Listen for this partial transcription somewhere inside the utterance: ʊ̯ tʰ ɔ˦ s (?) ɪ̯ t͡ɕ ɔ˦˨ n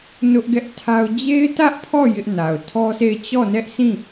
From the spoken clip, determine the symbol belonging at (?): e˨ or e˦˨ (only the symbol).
e˦˨